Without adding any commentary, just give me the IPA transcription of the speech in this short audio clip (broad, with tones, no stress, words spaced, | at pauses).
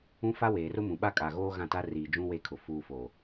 ũ˦ fa˦weː˨rʊ˦mũ˨ ɓa˦kʼa˨ ɣoː˦ɣã˦˨ta˦ riː˨d͡ʒũ˦ we˦kʰʊ˨ fuː˨fo˨